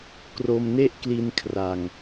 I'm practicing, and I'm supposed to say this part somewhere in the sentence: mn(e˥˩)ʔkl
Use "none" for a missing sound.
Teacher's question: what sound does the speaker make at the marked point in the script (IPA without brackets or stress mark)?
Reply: e˥˩